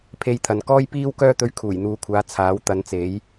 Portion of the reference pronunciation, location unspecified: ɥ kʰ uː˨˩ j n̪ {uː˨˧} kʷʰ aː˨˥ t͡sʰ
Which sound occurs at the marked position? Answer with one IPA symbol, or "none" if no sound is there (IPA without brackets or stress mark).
uː˨˧